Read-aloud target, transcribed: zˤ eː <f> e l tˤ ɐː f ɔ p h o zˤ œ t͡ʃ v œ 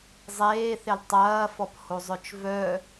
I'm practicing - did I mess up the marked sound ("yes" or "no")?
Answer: yes